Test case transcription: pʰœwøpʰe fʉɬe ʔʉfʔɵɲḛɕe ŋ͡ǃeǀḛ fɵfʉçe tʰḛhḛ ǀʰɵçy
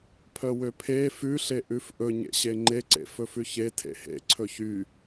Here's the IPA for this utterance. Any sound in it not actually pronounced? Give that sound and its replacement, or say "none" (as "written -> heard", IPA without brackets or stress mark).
none